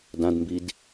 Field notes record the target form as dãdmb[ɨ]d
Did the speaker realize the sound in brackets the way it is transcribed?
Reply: no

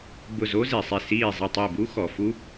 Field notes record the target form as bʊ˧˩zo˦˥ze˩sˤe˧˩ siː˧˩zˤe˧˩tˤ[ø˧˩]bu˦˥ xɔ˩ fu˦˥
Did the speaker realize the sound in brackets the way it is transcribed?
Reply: no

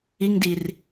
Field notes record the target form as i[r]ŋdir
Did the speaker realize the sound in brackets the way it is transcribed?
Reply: no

